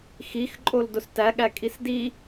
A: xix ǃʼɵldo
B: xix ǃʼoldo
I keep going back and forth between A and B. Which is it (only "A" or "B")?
B